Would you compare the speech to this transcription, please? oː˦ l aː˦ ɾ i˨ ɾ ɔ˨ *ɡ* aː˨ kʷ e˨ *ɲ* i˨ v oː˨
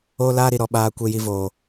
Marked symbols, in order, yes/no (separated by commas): no, no